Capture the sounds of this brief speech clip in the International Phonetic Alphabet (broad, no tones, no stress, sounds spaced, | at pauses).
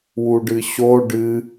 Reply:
w u ɖ ɨ ɕ o ɖ ɨ